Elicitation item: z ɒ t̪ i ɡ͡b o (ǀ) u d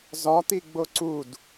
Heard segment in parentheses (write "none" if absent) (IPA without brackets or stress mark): ǀ